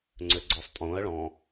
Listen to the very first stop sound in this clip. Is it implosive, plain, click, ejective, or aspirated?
click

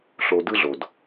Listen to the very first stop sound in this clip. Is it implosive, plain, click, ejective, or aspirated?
plain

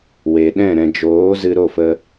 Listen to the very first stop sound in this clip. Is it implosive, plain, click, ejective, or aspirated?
implosive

